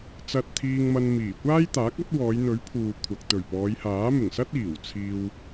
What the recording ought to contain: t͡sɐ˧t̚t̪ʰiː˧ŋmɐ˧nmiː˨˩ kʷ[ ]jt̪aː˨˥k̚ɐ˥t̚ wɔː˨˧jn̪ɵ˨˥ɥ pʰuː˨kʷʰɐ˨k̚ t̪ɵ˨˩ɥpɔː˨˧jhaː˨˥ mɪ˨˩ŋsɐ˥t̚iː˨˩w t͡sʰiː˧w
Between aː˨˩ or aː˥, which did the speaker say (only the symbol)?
aː˥